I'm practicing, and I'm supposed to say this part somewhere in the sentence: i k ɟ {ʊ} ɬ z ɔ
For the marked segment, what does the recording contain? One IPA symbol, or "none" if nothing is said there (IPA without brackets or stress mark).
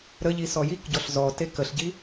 ɔ